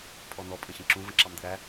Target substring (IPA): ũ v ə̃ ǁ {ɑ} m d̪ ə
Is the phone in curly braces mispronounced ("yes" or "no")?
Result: no